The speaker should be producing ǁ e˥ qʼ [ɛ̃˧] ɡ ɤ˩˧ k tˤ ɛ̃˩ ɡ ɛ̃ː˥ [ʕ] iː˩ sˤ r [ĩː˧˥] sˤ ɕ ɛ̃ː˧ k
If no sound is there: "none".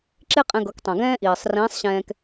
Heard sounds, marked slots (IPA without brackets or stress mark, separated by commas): ɛ̃˧, ʔ, ĩː˧˥